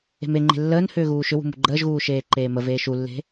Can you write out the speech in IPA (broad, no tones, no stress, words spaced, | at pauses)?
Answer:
e̤meŋ͡ǃe̤ lːəːn hʏːɣuːʃʏwṳ mṳɡ͡ǃəːʒɣuː ʃeːǃeːməveː ʃulːe̤